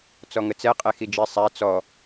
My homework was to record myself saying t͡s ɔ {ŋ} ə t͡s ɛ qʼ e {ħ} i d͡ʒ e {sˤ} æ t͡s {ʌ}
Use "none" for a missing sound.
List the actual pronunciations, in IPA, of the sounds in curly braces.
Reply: ŋ, x, sˤ, ɔ

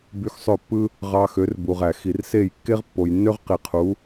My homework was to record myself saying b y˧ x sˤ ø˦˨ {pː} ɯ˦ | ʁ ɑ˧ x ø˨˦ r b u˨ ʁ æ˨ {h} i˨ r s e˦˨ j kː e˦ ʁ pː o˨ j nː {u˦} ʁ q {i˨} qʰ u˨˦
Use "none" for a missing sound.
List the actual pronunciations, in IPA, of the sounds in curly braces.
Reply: pː, x, ø˦, i˨

